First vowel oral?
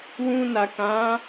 no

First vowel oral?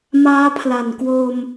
yes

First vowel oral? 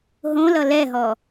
no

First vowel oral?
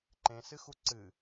no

